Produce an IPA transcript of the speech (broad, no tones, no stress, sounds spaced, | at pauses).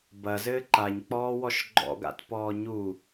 b ɐ z ɘː ǃ a ɲ k͡p ɔː w ɔ ʃ ɡ͡ǃ ɔ̰ ɡ a̰ t p ɔː ɲ u